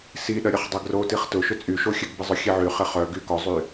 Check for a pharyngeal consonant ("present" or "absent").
present